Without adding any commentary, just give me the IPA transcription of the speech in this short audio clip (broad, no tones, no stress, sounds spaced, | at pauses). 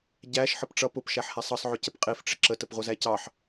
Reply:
ɟ æ ʃ ħ ə p ʈ͡ʂ ʌ p ʊ p ʃ æ ħ h æ sˤ ʌ sˤ ʕ ʊ c ə p qʼ i f ʈ͡ʂ ɪ ǁ ə t ə p ʁʷ ʌ z æ c ɑ ħ